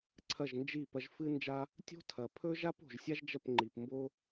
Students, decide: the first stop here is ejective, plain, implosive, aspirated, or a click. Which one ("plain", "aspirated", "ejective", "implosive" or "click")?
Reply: click